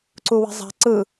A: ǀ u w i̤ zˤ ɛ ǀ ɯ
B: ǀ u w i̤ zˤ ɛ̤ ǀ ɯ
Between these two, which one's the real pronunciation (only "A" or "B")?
B